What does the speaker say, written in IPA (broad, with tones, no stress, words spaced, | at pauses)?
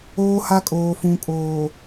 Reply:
oː˦ha˦ kʼoː˨fũ˨kʼoː˨